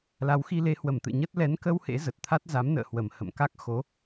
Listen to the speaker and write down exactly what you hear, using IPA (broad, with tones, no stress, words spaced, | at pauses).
la˨˦wxi˧le˧ hwə˧˩mt̪ɨ̰˧˨ ɲə˦˥t̚ lɛ˨˦nkə˧w hḛ˧˥zə˨˩t̚t̪ʰa˦˥t̚ za˨˦mnə̰ː˧˨ hwə˨˩mhə̰˧˨mka˦˥k̚ xo˨˦